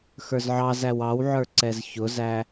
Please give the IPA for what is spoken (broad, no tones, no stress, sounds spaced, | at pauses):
x ə˞ z ʕ ɑ z æ w ɑ w ʕ ə˞ ǀ ɛ z ç ʊ z æ